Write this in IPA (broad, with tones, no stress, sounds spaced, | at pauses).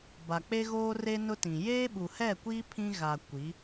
b a˨ k͡p e˦ ɣ oː˦ r e˦ n ʊ˦ t ĩ˨ j eː˦ ɓ u˨ h ɛ˦˨ kʷ iː˦ pʰ ĩ˦ ɣ a˨ kʷ i˨˦